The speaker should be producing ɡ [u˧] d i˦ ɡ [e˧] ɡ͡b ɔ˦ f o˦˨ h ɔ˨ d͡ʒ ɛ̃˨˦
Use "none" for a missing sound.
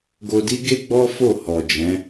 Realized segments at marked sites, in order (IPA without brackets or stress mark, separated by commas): o˧, e˦